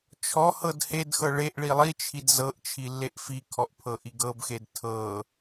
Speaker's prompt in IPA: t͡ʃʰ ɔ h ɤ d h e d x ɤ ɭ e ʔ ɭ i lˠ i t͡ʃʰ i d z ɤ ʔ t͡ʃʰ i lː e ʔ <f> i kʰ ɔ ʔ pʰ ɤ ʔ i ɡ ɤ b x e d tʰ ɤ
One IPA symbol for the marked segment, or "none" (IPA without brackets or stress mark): f